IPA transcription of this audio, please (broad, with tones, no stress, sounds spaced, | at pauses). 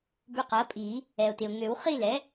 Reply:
b ʏ˧ q ɐ˩˥ pʼ i˨˩˦ | ɛ˩ o̯ t ɪ˩ o̯ ŋ ø˨˩˦ w χ i˥˧ l ɛ˩˥